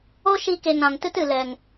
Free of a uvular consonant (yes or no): yes